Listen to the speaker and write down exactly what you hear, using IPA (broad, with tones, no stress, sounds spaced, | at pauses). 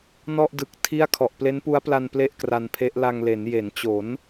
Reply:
n ɔ˥˩ ʔ d ɯ˨˩ k̚ tʰ i˥˩ a̯ kʰ ɔ˨˩ ʔ p l e˦˥ n p u˦˥ a̯ p l a˧ n p l e˥˩ ʔ k r a˧ n pʰ e˦˥ ʔ l a˧ ŋ l e˩˦ n j e˩˦ n t͡ɕ o˩˦ n